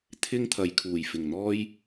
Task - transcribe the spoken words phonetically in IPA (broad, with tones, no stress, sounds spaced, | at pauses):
t̪ʰ ɪ˥ ŋ t̪ʰ ɐ˨ j kʰ uː˨˩ j f ɪ˨˩ ŋ n̪ ɔː˥ j